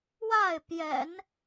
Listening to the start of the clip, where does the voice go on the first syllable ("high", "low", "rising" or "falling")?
falling